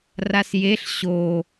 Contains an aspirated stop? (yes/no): no